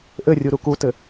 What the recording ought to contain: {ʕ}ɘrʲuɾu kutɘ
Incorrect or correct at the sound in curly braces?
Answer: incorrect: ʔ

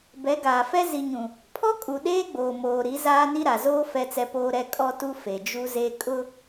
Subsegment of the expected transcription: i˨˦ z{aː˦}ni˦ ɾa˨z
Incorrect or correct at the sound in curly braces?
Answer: correct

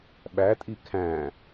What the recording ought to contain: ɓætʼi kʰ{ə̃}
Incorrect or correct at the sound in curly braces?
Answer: incorrect: æ̃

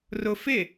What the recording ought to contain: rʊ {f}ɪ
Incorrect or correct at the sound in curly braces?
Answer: correct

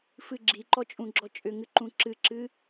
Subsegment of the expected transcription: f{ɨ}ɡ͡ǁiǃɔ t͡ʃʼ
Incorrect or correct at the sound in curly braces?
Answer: correct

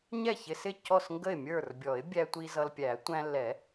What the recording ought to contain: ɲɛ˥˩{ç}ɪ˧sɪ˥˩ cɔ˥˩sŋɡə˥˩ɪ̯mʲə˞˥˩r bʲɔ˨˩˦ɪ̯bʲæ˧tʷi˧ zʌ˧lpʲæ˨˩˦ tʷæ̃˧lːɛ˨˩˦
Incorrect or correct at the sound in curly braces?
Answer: correct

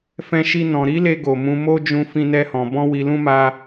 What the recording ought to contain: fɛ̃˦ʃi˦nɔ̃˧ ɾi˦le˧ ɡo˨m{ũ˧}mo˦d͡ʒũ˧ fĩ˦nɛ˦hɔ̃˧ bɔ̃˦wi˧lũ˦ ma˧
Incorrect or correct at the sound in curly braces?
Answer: correct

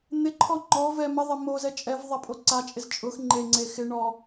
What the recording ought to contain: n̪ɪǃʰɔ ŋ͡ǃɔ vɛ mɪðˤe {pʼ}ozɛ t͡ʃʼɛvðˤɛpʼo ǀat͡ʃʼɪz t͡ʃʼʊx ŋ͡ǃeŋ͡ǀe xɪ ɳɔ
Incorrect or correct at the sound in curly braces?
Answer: incorrect: m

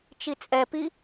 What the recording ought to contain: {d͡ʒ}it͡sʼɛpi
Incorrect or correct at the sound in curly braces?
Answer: incorrect: t͡ʃ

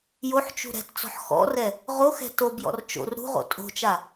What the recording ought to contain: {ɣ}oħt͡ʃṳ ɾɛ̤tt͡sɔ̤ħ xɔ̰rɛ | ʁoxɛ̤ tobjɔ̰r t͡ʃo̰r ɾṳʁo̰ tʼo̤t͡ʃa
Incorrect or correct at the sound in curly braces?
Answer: incorrect: j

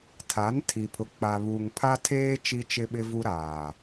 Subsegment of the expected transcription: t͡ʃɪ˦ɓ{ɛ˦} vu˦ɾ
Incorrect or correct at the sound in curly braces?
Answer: incorrect: ɪ˦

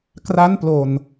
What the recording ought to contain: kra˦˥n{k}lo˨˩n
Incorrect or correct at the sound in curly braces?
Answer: incorrect: p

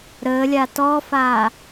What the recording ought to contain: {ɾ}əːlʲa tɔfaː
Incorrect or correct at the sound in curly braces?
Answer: correct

